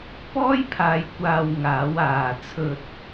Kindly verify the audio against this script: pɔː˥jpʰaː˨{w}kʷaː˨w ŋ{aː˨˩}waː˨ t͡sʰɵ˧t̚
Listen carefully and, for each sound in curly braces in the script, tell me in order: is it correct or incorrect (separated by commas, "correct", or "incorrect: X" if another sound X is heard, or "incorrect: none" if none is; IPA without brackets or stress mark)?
incorrect: j, incorrect: aː˨˥